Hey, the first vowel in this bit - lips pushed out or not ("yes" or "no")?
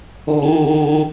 yes